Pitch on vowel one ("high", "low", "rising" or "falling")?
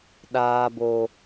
high